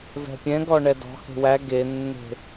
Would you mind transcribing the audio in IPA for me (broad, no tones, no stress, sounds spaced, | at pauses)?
v ɛ̤ pʲ ɛ̃ ɡ ɔ ɳ ɛ d ɔ̤ h e̤ w æ ɡ e nː e̤